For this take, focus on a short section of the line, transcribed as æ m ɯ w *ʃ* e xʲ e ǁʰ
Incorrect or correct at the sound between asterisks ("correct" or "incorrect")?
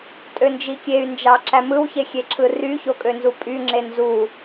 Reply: incorrect